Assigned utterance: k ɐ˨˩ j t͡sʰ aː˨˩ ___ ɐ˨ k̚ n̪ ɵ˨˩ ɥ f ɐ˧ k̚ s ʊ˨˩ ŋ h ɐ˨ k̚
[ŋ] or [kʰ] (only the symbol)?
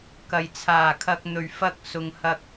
kʰ